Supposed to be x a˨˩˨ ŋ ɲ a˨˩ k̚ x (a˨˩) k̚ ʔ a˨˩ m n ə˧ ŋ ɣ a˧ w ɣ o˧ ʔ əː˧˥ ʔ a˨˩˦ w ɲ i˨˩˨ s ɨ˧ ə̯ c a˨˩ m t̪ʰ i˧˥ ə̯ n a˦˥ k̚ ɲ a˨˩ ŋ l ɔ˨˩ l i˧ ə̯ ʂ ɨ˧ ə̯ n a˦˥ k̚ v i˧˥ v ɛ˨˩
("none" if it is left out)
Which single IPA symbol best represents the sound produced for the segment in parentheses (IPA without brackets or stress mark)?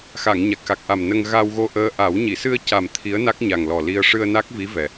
a˨˩